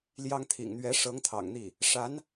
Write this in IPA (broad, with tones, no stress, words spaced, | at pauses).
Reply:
ljɑ˥ŋt̪ʰḭ˨˩ŋ n̪ɥɛ˧˥ ʂɤ˧˥ŋ t̪ʰɑ̰˨˩ŋn̪i˥˩ | ʂa˧˥n